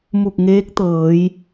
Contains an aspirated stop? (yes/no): no